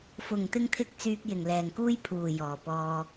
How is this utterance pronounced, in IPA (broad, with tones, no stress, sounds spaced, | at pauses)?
f ʊ˨˩ ŋ t̪ ɪ˧ ŋ t̪ʰ ɪ˧ k̚ t͡s yː˧ k̚ j ɪ˨˩ ŋ l ɛː˨˩ ŋ k uː˥ j pʰ uː˨˩ j ɔː˨˩ p ɔː˧